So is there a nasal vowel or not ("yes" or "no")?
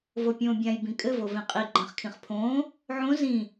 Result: yes